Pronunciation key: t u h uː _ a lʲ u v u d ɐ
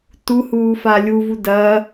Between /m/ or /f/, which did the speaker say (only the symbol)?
f